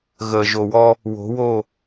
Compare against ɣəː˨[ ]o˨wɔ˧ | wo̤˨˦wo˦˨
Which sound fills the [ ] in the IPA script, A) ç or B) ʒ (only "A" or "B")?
B